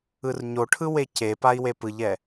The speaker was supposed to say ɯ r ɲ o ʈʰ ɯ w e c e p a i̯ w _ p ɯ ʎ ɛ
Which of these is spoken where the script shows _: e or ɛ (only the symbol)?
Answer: e